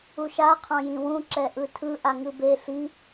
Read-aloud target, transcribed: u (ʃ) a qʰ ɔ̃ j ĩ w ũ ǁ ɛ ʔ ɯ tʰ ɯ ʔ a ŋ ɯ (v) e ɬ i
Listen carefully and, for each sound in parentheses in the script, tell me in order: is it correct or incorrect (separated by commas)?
correct, incorrect